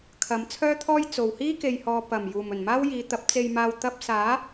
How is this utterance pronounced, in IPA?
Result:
kʰ ɐ˨˧ m t͡sʰ œː˥ t̪ʰ ɔː˥ j t͡s o˨ w h iː˥ k e˨ j h ɔː˨ p ɐ˨˩ m j uː˨˩ m ɵ˨˩ n m aː˥ w j iː˨˧ t̪ ɐ˨˥ p̚ t͡s e˧ j m aː˧ w t̪ ɐ˥ p̚ s aː˨˥

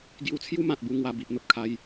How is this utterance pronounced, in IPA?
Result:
ɡ j u˧ t͡sʰ j u˦ m ã˨ t̚ b u˧ ŋ w a˧ b i˨ ʔ n̪ ə˨ p̚ kʰ a˧ j

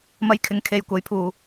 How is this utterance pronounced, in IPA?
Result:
m ɐ˧ j kʰ ɪ˨˥ ŋ kʰ e˨ j kʷ ɐ˨˥ j pʰ uː˨

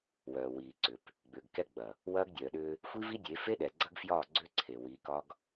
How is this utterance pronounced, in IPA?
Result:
w œː˨ w iː˨ ǀ ʏ˨ p | ɡ͡b ʏː˨ ɡ k ɛ˦ ɡ͡b ɐ˨ | w ɐː˦ ɡ dʲ œː˨ ɗ ʏː˦ | xʷ i˦ v i˦ dʲ e˨˦ f e˦ ɗ ɛ˨ ɡ͡ǀ ɐ˦ ɡ f j ɒː˦˨ ɡ͡ǀ ʏː˦ ǀʰ e˨ w iː˨˦ k ɒ˦ ɡ

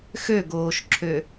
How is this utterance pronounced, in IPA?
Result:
x ø ɡ oː ʃ ǁʰ ø

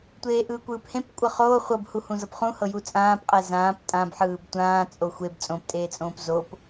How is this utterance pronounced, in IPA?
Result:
tʷ eː ʔ ɯː kʷ ɯː p h ẽ p kʷʼ ɤ χ oː χʷ ɤ b h u h ũ z ɤ p χ ũ h ɤ j u t͡sʼ ãː p qʼ e z ãː p tʼ ã b ħ ɯː b tʷ ãː t͡sʼ o xʷ e b t͡sʼ õ p tʼ eː t͡sʼ õː p z o p

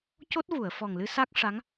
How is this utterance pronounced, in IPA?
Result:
c o˦˥ t̚ v u˨˩˨ ə̯ f ɔ˨˩ ŋ l ɨ˧ s a˦˥ k̚ ʂ a˧˥ ŋ

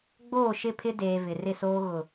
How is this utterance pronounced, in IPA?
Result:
ɡ͡b oː˦˨ ʃ ɪ˦˨ pʰ ɪ˦ d eː˨ v ɪ˨ r ɪ˦˨ s oː˦ ɣ ʊ˨

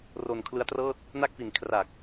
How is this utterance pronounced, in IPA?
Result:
r o˧ n kʰ l ɯ˦˥ a̯ t r ɤː˥˩ t̚ | n a˥˩ k̚ f i˨˩ n kʰ r a˨˩ k̚

